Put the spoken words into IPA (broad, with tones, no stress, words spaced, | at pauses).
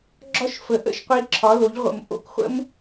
ɡ͡ǁɒ˦ʃfə˨ ʔə̰˧ʃ qʷi˧ǁʰɒ˨˦lo˨˦ʎʁʷə̰˨m ʔo̰˧kχʷə̰˦m